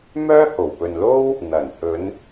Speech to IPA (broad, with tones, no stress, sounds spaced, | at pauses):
m œː˥ h o˨˩ w p ɵ˨ n l o˥ w | n̪ ɐ˨˩ n h ɵ˨˧ n